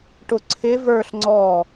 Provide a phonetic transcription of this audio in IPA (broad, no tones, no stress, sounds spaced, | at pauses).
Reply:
ʈ ʊ ǀʰ ɪ v ə˞ ɬ ŋ͡ǀ ɔ